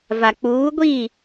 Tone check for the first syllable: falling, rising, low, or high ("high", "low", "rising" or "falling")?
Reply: low